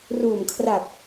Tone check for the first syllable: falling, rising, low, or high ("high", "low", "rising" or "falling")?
low